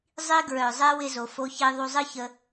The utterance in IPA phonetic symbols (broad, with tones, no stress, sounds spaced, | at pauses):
zˤ i˧ ɡ ɹ œ˩ zˤ e˧ w ɪ˥˧ z o˩ f o˧ ç i˧ ðˤ u˧ zˤ ɨ˥ ç ə˧